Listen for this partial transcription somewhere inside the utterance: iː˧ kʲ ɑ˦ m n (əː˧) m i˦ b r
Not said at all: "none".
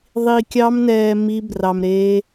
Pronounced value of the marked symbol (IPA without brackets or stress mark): ɛː˧